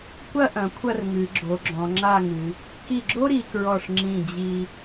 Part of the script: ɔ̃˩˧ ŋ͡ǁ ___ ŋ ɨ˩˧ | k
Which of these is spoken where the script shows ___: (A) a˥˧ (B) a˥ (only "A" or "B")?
A